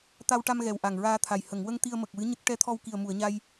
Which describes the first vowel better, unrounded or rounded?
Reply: unrounded